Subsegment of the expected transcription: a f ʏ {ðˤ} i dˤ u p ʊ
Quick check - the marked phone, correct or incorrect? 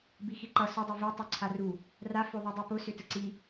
correct